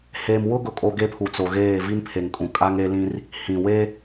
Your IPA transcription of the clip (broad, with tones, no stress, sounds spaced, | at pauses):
h eː˨ m w ʊ˦ ɡ ʊ˨ kʼ o˨ ɡ e˦ pʰ u˨ t͡s o˨ ɣ eː˦˨ v i˦ n pʰ e˨ ŋ kʼ ũ˨ kʼ a˦ ŋ e˦ l ĩ˦ r | h ĩ˨ w e˦